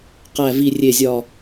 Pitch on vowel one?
low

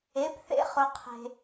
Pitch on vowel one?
rising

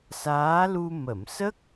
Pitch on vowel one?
rising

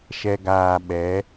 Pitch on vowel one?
low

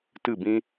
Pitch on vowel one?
falling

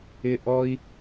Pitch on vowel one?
high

